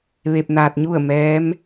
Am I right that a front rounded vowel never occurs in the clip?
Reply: yes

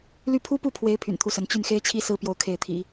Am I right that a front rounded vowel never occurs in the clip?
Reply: no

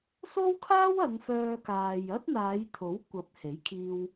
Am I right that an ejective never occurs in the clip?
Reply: yes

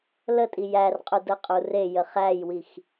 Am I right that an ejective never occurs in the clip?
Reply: no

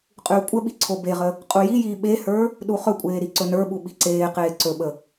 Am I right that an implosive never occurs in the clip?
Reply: no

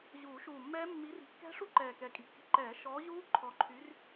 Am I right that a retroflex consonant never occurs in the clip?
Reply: no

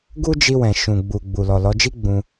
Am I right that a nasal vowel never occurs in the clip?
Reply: no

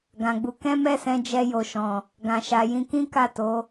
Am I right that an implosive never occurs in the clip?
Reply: yes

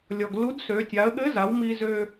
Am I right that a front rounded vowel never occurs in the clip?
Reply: no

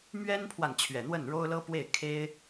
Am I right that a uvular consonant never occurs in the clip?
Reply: yes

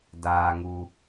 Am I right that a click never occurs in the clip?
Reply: yes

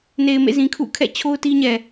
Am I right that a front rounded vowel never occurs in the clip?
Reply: yes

